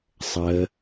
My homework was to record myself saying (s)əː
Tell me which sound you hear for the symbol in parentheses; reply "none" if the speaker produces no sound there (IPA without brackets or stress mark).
sˤ